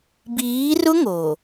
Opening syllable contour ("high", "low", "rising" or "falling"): rising